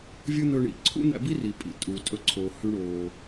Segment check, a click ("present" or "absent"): present